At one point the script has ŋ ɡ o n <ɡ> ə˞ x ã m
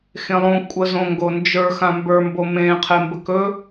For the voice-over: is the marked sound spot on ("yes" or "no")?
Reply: no